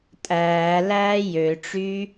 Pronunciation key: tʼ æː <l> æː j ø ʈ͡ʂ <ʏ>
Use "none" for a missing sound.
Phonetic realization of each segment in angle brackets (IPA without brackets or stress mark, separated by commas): l, y